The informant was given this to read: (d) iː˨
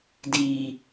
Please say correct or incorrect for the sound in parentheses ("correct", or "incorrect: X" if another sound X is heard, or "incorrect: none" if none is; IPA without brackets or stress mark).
correct